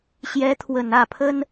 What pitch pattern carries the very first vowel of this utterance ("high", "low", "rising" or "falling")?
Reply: rising